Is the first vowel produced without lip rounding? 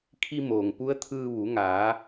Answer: yes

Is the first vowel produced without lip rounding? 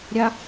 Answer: yes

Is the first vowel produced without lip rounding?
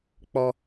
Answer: no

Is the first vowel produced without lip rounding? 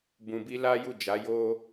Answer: no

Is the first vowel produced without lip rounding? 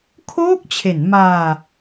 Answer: no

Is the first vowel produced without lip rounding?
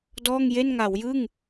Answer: no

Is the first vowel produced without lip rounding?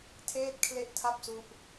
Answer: yes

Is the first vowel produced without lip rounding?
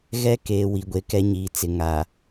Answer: yes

